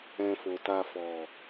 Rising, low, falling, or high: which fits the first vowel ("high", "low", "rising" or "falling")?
low